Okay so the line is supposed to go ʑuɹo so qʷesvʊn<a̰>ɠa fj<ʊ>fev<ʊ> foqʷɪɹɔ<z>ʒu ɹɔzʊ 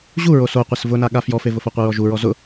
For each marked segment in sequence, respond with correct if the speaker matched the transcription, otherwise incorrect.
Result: incorrect: a, incorrect: ɔ, correct, incorrect: none

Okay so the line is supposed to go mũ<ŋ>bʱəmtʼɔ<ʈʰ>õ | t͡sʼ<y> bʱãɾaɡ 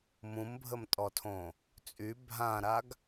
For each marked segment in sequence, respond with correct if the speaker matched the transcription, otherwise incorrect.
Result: incorrect: m, incorrect: tʰ, correct

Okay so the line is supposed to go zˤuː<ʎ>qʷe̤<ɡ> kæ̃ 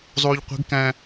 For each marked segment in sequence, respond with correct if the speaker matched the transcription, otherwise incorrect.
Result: correct, correct

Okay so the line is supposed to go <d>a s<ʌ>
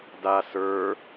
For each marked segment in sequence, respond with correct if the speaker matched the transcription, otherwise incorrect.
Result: correct, incorrect: ə˞

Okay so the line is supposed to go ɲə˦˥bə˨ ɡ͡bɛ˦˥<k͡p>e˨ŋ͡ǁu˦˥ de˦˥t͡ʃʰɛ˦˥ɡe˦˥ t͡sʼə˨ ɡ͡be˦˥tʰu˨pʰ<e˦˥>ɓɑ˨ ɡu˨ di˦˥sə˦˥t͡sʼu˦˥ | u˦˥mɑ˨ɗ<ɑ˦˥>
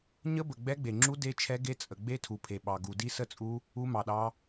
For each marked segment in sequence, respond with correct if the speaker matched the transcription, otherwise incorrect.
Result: incorrect: ɡ͡b, incorrect: e˨, correct

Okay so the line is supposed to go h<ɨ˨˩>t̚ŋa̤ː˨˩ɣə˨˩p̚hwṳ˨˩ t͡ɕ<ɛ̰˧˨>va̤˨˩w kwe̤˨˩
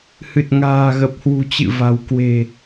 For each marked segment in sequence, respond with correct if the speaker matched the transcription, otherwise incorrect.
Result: correct, incorrect: ɨ̰˧˨

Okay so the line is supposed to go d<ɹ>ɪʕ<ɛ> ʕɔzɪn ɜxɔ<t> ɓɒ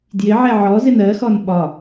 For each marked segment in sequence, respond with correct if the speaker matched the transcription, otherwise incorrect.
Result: incorrect: j, correct, incorrect: n

